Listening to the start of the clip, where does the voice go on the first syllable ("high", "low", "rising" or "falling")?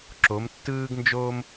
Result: rising